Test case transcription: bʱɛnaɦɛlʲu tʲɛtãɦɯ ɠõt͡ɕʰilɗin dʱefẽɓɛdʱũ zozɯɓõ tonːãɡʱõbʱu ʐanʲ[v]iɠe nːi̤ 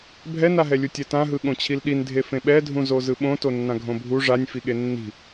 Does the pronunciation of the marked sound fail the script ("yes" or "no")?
yes